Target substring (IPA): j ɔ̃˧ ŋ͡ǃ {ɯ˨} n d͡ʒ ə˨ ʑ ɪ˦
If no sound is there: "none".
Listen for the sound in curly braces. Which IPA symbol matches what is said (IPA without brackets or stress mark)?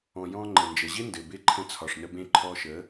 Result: ə˨